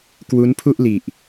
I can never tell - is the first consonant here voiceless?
yes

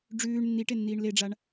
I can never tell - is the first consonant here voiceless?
no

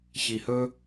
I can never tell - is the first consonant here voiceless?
yes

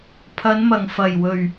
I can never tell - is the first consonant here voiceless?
yes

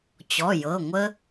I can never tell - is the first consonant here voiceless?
yes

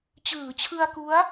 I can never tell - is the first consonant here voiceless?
yes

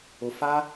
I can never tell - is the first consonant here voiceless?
yes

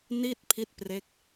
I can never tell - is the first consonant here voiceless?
no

